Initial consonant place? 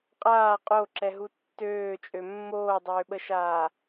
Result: uvular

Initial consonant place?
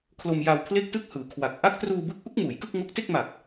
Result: velar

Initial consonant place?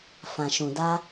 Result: labial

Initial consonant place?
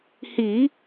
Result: glottal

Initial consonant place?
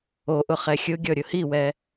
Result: glottal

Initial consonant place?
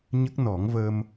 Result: palatal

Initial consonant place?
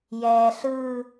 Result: palatal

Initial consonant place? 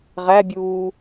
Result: uvular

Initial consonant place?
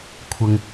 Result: velar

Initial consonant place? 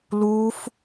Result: alveolar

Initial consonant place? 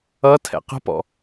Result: alveolar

